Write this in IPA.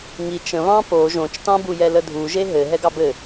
ŋit͡ʃ ə̃βɑ̃ po ʒõt͡ʃtɑ̃bujɛ lədʱu ʒeɦɘ ɦɛɡɑbɘ

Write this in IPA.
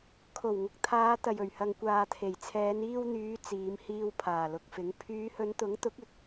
kʰo˨˩wŋʊ˨k̚ t̪ʰaː˨˧ t̪ɐ˨jɵ˨˩ɥhɐ˨ŋ kʷaː˨t̪ʰe˨˩jt͡sʰɛː˨˧n iː˧wn̪yː˨˧ t͡siː˨˧mhiː˧w pʰaː˨˩lʊ˨k̚fɪ˨˥ŋ pʰyː˨˧hɵ˨˧nt̪ʊ˨˥ŋt̪ʊ˨˥k̚ ɪ˨k̚

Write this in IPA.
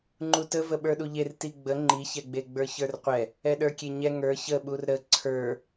ŋ͡ǃutə vəɓə˞ɗuʎer tiɡ͡bə ŋ͡ǃiçɛɡ͡beɡ͡bə˞ çə˞rqʷɛ | ɛɗə˞kʲeɲɛ ŋə˞ çəɓur ɾə ǀʰə˞

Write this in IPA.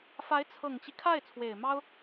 fa˧˥ɪ̯t͡sʰɤ˨˩ŋt͡ɕi˦ kʰa˥˩ɪ̯t͡sʰwe˨˩ɪ̯mɑ˥ʊ̯

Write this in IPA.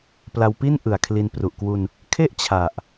pla˧wpi˥˩n ʔɯ˨˩a̯kʰli˧npru˨˩ʔ kwu˧n | kʰe˥˩ʔ t͡ɕʰa˨˩ʔ

